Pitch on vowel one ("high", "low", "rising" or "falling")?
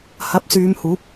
rising